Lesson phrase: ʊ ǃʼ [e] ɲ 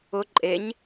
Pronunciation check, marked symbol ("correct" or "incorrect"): correct